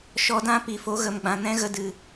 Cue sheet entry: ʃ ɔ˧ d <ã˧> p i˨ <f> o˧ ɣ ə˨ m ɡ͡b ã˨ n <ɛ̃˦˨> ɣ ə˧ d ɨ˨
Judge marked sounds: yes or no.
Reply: no, yes, no

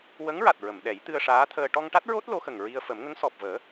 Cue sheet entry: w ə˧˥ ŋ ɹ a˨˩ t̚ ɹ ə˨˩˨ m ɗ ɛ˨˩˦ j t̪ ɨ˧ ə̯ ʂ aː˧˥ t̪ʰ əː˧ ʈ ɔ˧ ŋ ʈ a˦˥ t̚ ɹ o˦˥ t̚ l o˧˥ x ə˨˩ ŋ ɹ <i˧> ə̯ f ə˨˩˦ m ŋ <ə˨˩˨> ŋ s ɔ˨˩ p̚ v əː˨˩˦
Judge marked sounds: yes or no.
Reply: yes, no

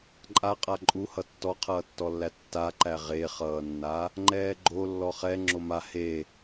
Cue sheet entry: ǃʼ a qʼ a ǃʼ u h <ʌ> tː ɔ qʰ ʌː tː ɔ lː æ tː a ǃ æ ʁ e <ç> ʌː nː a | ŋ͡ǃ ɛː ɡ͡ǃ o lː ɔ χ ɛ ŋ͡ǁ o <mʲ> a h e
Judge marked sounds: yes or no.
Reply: yes, no, no

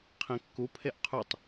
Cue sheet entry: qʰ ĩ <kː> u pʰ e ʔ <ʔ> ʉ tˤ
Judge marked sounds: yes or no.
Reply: yes, no

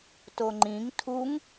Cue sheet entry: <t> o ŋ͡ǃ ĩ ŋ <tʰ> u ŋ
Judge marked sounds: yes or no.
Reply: yes, yes

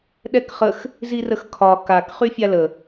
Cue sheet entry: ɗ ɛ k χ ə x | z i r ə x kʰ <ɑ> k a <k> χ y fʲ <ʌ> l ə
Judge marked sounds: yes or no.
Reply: no, yes, no

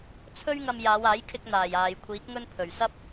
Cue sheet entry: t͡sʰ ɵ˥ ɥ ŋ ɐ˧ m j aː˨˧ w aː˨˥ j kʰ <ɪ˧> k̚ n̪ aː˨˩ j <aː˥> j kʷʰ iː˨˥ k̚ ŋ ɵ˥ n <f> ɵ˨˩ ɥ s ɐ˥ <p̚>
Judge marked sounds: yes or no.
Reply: yes, no, no, yes

